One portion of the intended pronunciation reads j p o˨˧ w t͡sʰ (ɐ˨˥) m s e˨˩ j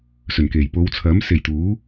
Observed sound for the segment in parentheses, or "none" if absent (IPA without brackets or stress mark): ɐ˨˥